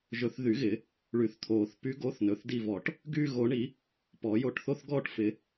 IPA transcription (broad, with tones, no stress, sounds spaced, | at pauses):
ʒ ɵ˨˩˦ θ ð y˨˩˦ ɣ ɪ˨˩˦ | ɭ y˨˩˦ θ t̪ʰ oː˨˩˦ θ p y˨˦ ɡ o˨˦ θ n ɵ˩˧˩ θ d i˦˨ v ɔ˨˩˦ ʈ | ɡ yː˦˨ ɣ o˨˩˦ ɳ i˨˩˦ | p ɔ˨˩˦ j o˦˨ ʈ θ o˥ θ ɡ ɔː˥ ʈ f ɪ˨˦